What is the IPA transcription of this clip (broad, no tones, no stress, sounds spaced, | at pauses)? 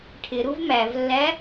ʈʰ ɪ ɾ u v m æ v lː æ